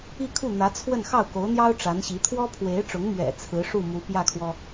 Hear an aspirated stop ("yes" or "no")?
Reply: yes